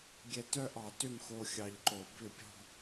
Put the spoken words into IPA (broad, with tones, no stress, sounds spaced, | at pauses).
ɡʲ ɛ˧ t œ˥˧ ʔ ɑ˧˩˧ t ʏ˥˩ m x o˧ xʲ ɑ˧ ʎ ǃ o˧˩˧ b ʏ˥˩ pʲ ɔ̤˥˧